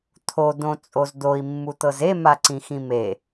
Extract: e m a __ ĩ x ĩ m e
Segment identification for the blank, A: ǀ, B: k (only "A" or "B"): A